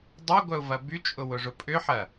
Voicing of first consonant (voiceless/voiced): voiced